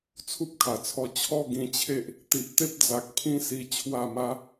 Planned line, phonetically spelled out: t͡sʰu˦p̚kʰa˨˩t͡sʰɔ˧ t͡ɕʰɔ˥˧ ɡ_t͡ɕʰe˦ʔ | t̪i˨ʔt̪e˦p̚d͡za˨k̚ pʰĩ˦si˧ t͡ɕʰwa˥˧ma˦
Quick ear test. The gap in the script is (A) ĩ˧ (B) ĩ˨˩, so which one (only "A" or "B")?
A